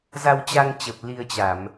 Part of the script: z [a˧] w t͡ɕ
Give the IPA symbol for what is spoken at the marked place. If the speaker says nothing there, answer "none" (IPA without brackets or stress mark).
a˧